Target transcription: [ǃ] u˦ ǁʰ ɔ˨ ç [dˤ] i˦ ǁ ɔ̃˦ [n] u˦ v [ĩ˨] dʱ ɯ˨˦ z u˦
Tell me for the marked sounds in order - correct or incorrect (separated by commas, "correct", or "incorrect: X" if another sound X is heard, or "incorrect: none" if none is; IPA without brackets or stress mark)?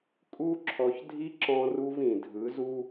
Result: incorrect: kʼ, incorrect: dʱ, incorrect: r, correct